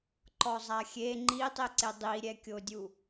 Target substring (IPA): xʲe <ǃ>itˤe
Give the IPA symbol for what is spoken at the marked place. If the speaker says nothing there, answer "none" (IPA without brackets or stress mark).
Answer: ŋ͡ǃ